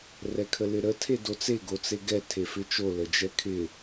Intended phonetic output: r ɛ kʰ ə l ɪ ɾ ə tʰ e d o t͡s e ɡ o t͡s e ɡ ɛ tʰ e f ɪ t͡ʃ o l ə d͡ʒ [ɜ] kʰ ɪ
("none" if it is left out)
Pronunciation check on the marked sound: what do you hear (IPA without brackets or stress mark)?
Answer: ɛ